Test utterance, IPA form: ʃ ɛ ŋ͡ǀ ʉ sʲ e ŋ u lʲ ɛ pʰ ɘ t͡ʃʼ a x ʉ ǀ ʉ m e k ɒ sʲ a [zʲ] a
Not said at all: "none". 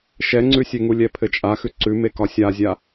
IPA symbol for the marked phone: zʲ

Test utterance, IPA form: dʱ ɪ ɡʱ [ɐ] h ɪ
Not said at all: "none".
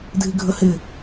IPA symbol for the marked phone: ə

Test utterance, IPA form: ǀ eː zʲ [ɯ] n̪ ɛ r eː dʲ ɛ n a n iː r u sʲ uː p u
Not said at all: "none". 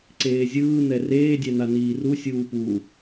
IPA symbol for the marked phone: ɯː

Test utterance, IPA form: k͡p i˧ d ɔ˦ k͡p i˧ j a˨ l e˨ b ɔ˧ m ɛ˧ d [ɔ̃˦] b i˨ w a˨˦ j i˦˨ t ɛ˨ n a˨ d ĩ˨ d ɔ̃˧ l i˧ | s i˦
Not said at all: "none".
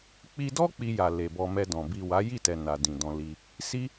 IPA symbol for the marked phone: ɔ̃˨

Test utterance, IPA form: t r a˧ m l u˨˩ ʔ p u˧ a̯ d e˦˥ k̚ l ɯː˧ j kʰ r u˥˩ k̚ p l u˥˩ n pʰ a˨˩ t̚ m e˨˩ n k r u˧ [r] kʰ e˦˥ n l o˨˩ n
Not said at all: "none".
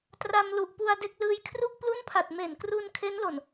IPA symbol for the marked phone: n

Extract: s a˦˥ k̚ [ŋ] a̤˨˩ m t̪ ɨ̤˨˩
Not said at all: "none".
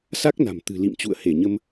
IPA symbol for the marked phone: n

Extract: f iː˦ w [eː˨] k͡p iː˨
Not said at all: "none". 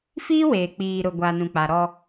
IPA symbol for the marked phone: eː˨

